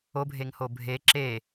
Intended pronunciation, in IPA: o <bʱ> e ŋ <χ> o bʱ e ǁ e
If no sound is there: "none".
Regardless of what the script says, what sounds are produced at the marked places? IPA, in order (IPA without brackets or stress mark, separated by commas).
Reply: bʱ, h